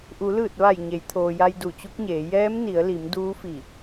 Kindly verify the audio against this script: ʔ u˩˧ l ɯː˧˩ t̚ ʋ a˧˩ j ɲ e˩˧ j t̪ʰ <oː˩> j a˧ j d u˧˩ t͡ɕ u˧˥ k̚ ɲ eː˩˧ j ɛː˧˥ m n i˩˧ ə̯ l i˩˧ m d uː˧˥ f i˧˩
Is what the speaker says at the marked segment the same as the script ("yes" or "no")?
yes